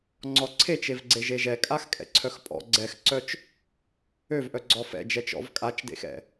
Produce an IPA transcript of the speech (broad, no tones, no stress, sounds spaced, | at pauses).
ŋ͡ǀ ɔ ǀʰ e t͡ʃ e v ɡ͡ǀ e ʒ e ʒ ɛ kʼ a x kʼ ɛ̰ ǀʰ œ x pʼ ɔ̰ ɡ͡ǀ ɛ x ǀ œ t͡ʃ | ø v ʔ œ ɡ͡ǀ ɔ f ɛ̰ d͡ʒ ɛ t͡ʃ ɔ̰ v kʼ a t͡ʃ d ḛ x ɛ̰